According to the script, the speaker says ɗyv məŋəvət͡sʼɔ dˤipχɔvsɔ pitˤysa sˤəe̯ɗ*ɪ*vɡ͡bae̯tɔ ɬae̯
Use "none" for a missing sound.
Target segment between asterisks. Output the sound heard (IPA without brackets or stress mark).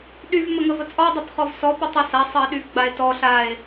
y